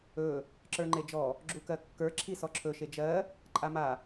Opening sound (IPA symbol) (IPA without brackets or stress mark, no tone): ɵ